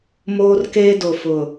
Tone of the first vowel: high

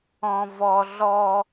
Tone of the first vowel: high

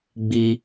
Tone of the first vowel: high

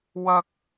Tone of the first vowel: high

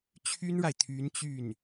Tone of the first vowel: high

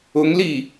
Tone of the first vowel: rising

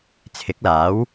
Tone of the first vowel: rising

